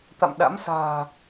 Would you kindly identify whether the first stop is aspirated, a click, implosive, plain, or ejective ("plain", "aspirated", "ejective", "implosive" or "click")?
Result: plain